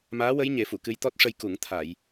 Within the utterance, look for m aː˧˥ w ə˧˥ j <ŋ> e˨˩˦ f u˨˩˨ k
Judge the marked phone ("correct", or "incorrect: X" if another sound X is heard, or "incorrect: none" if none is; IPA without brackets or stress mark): incorrect: ɲ